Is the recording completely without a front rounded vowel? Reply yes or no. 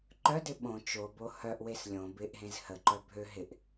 no